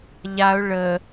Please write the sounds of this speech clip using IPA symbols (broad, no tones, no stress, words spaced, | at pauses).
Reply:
ʎaʊ̯ ɭə